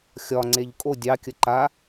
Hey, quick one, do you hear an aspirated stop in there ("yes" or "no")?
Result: no